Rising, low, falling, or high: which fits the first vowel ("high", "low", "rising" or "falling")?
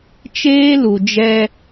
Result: high